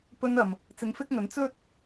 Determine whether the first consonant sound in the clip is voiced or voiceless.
voiceless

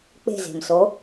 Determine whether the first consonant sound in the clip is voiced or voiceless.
voiceless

